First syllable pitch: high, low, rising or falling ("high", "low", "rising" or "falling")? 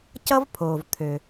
high